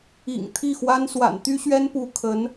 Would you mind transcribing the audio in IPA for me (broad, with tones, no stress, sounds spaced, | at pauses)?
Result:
ḭ˨˩ ŋ t̪ʰ i˥˩ x w a˥ n s w a̰˨˩ n t̪ y˥ ɕ ɥ ɛ˥ n p u˧˥ kʰ ə˧˥ n